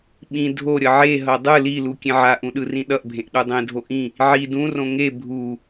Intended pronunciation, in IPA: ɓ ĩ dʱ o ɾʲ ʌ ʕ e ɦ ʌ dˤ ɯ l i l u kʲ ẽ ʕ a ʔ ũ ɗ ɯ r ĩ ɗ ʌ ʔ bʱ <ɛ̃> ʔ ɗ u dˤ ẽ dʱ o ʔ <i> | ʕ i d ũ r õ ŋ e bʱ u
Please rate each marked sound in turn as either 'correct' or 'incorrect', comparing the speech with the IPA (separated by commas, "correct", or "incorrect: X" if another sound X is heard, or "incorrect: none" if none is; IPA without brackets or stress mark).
incorrect: ẽ, incorrect: ĩ